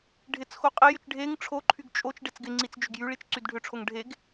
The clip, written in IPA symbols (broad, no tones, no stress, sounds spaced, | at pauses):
ɖʱ ɪ t͡s x o qʼ e j ʏ t͡ʃ ɖʱ e ŋ ʈ͡ʂʰ o ǃʰ y ɡ t͡ʃʼ o t͡ʃ ɖ e t͡s ɡ ɪ ŋ͡ǀ i t͡s d͡ʒ ʏ ɡ j y ɭ i t͡ʃ ǀ y d ɖʱ ʏ ʈ͡ʂʰ o ŋ ɖʱ e ɡ